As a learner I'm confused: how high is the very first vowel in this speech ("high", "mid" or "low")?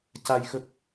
low